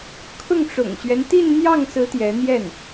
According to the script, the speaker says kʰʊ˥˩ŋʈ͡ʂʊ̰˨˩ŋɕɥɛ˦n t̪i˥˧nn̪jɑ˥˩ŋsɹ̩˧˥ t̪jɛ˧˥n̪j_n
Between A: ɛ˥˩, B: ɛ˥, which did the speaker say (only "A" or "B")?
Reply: A